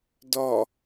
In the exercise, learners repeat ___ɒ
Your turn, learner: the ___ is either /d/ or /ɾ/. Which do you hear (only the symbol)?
d